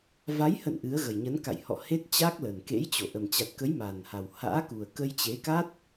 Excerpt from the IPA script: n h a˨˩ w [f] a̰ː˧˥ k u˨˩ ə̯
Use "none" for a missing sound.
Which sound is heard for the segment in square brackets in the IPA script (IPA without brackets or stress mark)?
h